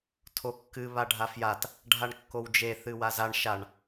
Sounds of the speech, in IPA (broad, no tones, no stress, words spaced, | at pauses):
tʰokːɨ βaɖʱafjat | ɖʱaɳkːowd͡ʒe θɨwazaɳ ʃaɳ